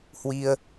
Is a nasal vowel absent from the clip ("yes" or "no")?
yes